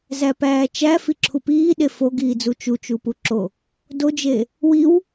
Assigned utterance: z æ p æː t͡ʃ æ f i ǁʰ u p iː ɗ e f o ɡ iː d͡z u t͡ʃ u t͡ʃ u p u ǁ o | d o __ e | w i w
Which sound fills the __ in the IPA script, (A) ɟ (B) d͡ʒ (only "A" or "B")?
B